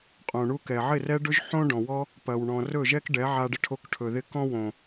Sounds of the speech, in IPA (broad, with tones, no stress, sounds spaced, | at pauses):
qʼ õ˨ ɳ u˧ k ɛ˨ ʕ ɪ˦˨ r ɛ˦ ɖ ɵ˦ ʒ ħ õ˦ ɖ ɔ̃˨ w ɔ˦ | p ɐ˨ w ɳ ɔ̃˨ r ɵ˦˨ ʒ ɛ˦ k ɖ ɛ˨˦ ʕ a˧ ɖ ɪ˧ ʈʰ o˧ k ʈʰ ɵ˨ ð ɪ˧ k ɔ̃˧ w õ˨